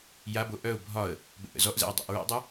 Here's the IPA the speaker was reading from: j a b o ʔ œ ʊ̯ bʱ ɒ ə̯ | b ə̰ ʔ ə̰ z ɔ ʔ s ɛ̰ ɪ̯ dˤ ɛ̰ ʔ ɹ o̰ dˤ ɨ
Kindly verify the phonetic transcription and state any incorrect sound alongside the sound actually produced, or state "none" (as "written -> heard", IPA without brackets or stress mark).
s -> z